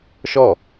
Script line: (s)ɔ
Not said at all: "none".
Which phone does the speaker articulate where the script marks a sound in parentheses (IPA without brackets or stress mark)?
ʃ